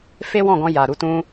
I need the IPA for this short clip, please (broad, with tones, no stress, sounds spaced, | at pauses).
f e˦ w ɔ̃˦˨ ɡ ɔ̃˧ j a˨ ɾ u˨˦ t ũ˦